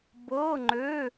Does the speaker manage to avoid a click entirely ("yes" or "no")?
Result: no